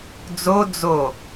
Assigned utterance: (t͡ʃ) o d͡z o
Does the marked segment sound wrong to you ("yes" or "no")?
yes